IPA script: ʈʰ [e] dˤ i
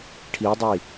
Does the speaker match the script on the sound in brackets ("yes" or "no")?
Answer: no